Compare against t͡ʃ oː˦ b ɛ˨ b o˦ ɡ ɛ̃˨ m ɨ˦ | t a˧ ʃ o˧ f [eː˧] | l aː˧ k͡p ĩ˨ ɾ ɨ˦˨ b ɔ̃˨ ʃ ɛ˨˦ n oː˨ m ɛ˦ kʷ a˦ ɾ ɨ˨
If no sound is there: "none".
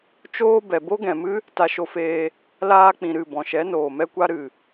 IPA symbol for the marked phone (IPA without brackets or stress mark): eː˧